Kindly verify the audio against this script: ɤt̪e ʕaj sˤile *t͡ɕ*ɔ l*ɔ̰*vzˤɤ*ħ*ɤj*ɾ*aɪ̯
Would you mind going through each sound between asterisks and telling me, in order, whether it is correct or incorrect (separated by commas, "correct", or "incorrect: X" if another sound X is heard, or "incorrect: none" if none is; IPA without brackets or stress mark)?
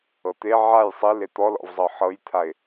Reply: incorrect: t̪, correct, correct, incorrect: t̪ʰ